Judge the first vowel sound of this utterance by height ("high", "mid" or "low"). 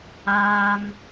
low